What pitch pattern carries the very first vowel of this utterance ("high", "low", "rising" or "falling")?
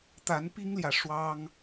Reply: rising